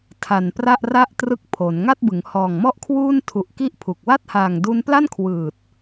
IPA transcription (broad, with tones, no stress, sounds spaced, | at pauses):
tʰ a˨˩ n p r a˥˩ ʔ r a˥˩ ʔ t r ɯ˦˥ k̚ pʰ o˩˦ n ŋ a˥˩ t̚ b ɯ˩˦ ŋ h ɔː˨˩ ŋ m ɔ˥˩ ʔ kʰ w uː˥˩ n tʰ u˨˩ ʔ k i˥˩ ʔ pʰ u˨˩ k̚ w a˥˩ t̚ h aː˨˩ ŋ d u˧ n p l a˥˩ n kʰ w ɯː˨˩ t̚